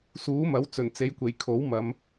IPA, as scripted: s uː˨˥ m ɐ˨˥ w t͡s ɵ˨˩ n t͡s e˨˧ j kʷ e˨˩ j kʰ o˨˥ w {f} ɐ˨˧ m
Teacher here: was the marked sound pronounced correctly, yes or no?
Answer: no